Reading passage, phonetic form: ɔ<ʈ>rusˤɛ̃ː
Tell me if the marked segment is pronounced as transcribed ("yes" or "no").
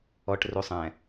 yes